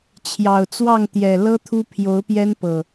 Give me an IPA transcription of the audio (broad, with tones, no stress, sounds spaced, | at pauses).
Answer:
t͡ɕʰ j ɑ˨˩ ʊ̯ t͡s w ɑ˥˨ ŋ t̪ j ɛ˨˩ l ɤ˦ t̪ʰ u˦ pʰ j o˨˦ ʊ̯ p j ɛ˦ n p ɤ˨˩